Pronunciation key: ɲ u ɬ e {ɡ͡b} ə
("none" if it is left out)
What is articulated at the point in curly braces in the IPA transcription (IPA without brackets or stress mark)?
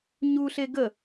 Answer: ɡ